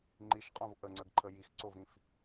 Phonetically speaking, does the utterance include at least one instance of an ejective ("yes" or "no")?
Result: yes